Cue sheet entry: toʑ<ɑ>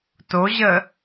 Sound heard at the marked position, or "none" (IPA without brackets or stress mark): ə